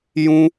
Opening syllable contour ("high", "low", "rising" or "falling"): high